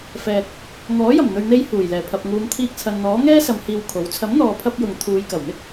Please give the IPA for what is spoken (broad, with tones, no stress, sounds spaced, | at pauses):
f ɛː˨ k̚ | ŋ ɔː˨˥ j ɐ˨˩ m n̪ ɵ˨ ɥ n̪ e˧ j h uː˨˩ j l ɛː˨˩ pʰ ɐ˨ p̚ ŋ uː˨˧ m t̪ʰ iː˧ k̚ t͡sʰ ɐ˨ n n̪ ɔː˨˥ ŋ ɛː˥ s ɐ˨˧ m h iː˧ w kʰ o˨˥ w t͡sʰ ɐ˨˥ m n̪ ɔː˨ pʰ ɐ˧ p̚ j ʊ˨ ŋ t̪ʰ uː˨˧ j k ɐ˨˩ w n̪ ɪ˥ k̚